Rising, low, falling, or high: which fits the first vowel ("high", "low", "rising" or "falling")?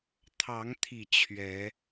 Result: rising